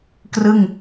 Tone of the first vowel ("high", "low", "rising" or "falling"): falling